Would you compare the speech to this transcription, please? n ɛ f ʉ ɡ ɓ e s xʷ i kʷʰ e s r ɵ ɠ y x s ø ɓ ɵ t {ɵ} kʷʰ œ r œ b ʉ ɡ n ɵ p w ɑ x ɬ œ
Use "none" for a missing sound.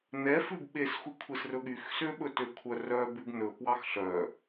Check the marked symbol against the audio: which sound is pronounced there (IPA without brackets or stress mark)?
ø